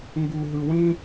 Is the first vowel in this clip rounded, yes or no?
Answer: yes